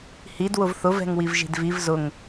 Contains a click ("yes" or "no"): no